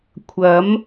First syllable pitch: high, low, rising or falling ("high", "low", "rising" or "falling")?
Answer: rising